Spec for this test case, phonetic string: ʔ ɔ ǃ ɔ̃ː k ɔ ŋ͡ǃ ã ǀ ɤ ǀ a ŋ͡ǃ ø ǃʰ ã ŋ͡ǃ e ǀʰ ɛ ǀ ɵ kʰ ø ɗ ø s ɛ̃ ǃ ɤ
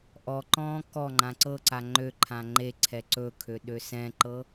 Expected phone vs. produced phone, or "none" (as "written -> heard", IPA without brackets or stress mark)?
none